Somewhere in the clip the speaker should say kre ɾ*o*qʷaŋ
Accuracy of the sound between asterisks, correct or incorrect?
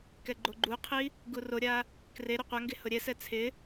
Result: correct